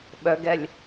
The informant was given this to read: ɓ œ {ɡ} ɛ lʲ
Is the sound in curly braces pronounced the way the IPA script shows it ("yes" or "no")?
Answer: yes